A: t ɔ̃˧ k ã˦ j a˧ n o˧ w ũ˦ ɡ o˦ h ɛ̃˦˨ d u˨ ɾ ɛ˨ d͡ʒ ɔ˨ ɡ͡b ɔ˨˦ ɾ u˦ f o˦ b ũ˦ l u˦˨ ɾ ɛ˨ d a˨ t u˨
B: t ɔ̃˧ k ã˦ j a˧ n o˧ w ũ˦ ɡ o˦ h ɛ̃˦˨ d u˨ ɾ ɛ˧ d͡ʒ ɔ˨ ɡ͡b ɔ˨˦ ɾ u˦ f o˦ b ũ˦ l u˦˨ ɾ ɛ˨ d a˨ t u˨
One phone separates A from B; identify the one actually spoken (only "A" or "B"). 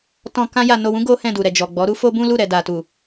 A